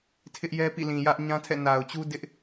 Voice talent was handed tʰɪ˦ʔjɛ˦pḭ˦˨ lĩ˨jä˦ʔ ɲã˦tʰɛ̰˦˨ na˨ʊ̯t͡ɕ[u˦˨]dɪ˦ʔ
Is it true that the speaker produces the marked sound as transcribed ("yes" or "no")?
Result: no